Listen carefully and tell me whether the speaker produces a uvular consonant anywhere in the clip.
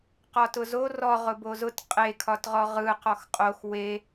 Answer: yes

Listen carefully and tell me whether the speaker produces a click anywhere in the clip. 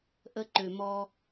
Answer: yes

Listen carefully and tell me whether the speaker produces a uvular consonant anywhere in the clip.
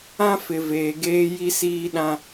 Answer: no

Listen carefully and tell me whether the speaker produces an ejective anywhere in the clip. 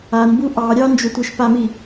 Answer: no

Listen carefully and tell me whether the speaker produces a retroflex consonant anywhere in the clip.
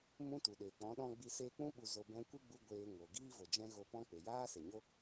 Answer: no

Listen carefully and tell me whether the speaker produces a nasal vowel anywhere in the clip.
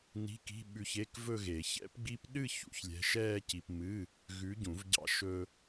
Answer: yes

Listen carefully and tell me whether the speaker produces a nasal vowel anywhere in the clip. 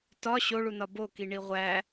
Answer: no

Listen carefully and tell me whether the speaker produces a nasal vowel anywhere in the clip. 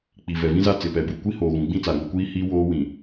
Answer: yes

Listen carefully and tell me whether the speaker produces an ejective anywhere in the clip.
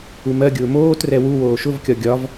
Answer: no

